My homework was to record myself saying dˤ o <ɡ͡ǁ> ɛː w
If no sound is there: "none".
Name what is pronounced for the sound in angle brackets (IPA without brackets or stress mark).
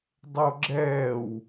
ɡ͡ǁ